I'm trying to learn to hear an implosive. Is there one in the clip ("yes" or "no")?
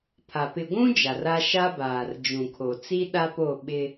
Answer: yes